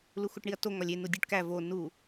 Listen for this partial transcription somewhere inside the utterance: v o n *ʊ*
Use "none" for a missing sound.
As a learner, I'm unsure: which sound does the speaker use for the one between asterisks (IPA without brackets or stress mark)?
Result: u